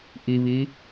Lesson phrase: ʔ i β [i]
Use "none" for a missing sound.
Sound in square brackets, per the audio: i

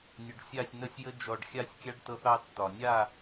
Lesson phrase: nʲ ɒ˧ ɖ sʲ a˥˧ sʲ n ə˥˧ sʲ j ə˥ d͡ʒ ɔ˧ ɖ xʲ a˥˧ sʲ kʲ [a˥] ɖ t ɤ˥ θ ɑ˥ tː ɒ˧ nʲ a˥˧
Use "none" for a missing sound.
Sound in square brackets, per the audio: a˥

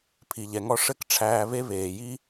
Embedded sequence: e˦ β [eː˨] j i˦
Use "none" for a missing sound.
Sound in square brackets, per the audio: eː˨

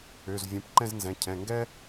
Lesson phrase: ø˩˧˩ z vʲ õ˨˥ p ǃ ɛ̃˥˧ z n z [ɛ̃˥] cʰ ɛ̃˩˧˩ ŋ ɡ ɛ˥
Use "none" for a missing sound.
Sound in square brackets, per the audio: ɛ̃˩˧˩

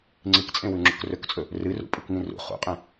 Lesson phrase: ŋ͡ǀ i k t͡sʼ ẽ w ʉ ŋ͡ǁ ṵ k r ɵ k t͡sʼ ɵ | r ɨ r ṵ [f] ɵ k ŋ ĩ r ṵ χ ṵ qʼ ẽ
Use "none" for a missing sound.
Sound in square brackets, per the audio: pʼ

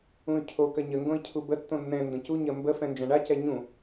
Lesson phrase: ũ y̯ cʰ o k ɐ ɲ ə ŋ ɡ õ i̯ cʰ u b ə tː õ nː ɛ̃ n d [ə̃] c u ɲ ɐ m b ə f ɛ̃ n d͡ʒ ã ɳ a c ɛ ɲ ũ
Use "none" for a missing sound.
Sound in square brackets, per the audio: ə̃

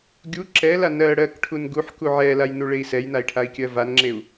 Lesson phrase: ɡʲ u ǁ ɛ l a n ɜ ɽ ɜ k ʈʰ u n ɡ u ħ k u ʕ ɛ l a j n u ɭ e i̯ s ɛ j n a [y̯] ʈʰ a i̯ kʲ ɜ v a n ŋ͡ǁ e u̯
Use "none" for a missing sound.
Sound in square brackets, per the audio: i̯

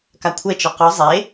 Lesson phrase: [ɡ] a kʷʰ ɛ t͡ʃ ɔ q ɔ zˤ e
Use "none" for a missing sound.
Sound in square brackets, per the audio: k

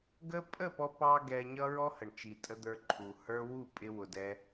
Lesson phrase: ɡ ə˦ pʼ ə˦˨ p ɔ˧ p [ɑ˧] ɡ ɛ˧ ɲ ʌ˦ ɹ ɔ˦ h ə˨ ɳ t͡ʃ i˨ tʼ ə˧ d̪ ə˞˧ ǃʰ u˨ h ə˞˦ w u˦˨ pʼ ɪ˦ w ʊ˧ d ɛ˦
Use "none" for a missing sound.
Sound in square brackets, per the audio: ɑ˧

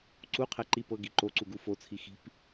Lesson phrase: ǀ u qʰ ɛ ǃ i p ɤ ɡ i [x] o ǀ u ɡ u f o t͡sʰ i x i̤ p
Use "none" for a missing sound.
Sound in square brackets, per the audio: ǃ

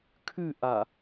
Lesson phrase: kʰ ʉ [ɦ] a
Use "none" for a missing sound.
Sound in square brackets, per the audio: ʔ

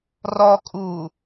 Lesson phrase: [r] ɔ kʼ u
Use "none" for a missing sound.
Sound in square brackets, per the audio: r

